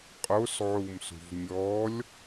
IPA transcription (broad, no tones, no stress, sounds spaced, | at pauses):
qʼ o s ʕ u m s ṳ v mʲ ɔ lʲ